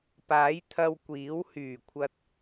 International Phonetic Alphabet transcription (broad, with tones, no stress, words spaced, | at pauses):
paː˨˥jt̪ʰɐ˧w kʷiː˨˥whyː˨˩kʷʰɐ˧t̚